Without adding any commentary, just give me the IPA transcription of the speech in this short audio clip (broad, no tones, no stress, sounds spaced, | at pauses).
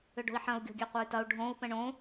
ʏ ɖ o̤ i̯ ħ ɐ̃ u̯ ɡʲ o̤ ɡʲ ɛ qʷ ɐ y̯ t ɐ u̯ ɖʱ õ u̯ p ə̃ ɳ õ